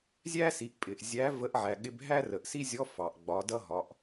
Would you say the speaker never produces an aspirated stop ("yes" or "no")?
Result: yes